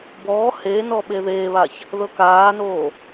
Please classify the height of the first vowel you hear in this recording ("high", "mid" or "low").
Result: mid